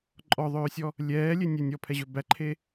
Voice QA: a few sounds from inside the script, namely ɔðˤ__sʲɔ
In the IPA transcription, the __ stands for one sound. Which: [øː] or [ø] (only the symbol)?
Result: øː